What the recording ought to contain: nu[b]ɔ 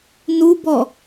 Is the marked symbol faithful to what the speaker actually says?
yes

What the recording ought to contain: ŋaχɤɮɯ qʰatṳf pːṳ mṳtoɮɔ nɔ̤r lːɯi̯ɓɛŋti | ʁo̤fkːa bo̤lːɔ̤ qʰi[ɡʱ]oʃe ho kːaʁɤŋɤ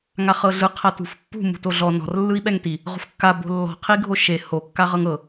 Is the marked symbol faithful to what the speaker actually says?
yes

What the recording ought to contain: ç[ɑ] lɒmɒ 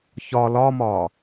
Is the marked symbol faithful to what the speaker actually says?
no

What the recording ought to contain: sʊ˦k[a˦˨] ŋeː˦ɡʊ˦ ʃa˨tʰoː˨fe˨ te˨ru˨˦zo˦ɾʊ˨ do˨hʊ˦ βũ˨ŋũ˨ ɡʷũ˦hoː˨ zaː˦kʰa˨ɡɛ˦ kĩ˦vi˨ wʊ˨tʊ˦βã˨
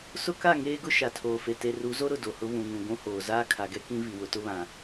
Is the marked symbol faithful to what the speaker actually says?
yes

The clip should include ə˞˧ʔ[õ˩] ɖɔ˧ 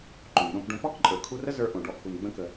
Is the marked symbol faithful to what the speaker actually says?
yes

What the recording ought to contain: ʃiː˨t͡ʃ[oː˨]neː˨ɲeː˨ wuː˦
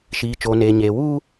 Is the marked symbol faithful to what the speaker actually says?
yes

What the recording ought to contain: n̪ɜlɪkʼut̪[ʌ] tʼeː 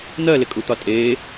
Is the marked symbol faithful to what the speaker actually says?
no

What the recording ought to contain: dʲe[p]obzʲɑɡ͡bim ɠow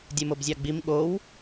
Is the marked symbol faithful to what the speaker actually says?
no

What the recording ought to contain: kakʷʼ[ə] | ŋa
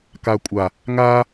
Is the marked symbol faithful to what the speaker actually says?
no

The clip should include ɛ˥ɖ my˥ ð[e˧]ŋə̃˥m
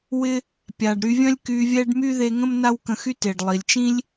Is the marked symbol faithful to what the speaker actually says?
yes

